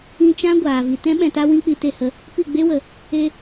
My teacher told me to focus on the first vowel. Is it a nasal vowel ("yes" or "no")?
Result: yes